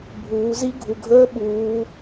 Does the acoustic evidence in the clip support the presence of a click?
no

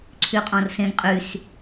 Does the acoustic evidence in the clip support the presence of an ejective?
yes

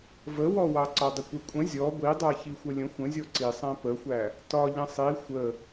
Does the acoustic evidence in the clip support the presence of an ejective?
yes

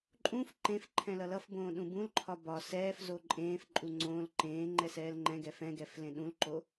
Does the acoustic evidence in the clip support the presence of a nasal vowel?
yes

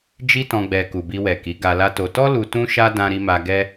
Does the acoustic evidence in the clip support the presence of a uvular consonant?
no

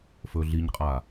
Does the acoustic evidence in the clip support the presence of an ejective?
yes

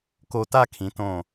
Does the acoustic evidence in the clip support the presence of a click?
no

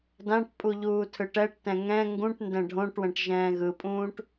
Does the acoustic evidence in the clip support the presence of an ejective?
yes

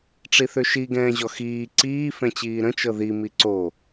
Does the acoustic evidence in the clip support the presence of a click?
yes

